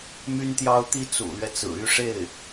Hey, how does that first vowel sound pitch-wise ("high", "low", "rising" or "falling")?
high